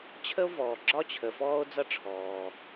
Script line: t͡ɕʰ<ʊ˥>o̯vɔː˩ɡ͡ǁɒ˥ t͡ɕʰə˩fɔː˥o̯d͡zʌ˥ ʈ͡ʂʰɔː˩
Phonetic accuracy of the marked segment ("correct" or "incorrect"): incorrect